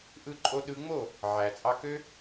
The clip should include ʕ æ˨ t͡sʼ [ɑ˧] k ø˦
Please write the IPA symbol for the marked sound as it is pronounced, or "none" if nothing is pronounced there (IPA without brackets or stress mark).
ɑ˧